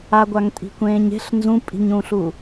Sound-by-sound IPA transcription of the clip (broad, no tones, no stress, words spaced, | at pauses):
aɡʷaŋtʼi̤kʷẽːɲ e̤ɬ nzũpʼi̤ɲũːɬu